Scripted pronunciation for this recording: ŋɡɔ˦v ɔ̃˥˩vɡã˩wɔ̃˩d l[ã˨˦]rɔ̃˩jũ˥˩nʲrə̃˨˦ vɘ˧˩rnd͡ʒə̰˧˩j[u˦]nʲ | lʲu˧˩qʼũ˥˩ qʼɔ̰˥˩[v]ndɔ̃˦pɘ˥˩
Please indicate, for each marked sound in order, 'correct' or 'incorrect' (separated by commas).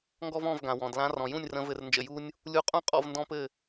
correct, correct, correct